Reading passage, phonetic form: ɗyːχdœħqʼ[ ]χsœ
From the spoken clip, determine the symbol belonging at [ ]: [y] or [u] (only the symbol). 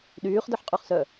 y